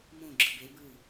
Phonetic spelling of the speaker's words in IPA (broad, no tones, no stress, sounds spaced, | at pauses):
m õ ɡ͡ǁ ɯ b e b ɯ